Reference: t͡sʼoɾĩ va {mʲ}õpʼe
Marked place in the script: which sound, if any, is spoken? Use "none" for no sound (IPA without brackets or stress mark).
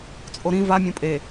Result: mʲ